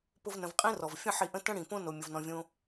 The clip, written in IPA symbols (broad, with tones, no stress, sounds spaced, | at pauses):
p ʊ˦ v n ə̃˧ v qʼ ĩ˦ r ɔ˨ v fʲ ə̃˦ ħ i˧ ʔ ə̃˦ t ə̃˦ ɽ ĩ˨ p õ˦ n o˧ mʲ ʊ˧ v n ɔ̃˧ vʲ õ˦